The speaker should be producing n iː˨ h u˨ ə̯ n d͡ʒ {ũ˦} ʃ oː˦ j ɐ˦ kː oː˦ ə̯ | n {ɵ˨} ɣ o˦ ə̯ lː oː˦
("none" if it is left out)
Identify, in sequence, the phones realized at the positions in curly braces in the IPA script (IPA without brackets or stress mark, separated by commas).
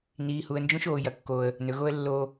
ũ˦, ɵ˨